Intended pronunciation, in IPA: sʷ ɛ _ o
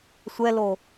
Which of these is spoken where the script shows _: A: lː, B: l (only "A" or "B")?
B